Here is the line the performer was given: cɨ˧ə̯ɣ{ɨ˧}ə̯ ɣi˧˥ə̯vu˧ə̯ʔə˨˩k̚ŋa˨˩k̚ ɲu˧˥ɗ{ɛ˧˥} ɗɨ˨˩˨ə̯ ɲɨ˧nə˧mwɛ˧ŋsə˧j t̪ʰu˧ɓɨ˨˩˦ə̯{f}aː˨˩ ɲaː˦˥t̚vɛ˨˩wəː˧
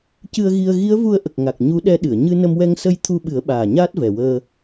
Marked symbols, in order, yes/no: no, yes, no

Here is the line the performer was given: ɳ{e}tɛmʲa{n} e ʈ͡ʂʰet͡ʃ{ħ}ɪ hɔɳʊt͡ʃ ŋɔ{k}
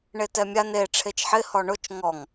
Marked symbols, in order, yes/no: yes, yes, yes, no

